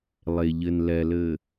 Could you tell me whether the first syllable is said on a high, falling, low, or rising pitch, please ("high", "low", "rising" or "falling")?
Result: low